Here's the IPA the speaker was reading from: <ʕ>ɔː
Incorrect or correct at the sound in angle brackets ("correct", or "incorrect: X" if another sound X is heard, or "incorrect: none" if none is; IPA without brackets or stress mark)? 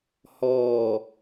incorrect: h